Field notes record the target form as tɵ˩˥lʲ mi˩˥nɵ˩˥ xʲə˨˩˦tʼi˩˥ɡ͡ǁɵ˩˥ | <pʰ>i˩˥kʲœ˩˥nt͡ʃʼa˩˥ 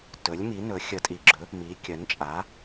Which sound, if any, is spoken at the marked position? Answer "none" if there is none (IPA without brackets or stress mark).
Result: m